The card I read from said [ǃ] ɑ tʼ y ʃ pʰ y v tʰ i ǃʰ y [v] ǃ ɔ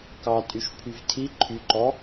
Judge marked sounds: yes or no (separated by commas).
no, no